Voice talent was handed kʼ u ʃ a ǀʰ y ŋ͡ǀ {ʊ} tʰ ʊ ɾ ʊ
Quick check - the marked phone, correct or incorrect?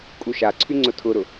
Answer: correct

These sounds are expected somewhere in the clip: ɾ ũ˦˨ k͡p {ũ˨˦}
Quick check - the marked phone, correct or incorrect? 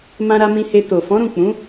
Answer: correct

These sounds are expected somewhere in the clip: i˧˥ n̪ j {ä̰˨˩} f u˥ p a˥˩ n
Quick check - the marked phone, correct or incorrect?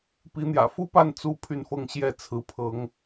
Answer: correct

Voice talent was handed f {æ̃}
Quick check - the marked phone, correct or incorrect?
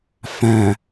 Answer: correct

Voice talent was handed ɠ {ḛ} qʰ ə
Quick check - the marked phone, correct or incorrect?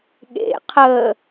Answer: correct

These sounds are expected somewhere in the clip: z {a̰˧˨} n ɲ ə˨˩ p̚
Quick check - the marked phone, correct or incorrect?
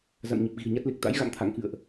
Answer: correct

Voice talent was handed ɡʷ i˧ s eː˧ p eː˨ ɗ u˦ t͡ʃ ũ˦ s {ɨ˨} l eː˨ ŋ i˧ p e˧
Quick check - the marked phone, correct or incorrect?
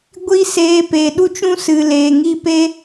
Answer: correct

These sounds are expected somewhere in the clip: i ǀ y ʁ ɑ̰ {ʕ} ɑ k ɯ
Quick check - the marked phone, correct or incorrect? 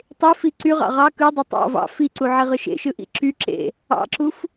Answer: incorrect: ʁ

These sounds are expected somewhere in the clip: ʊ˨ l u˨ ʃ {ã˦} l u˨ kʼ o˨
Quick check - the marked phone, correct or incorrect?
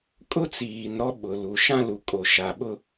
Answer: correct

